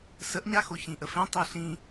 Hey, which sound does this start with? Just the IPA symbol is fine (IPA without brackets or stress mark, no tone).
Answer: s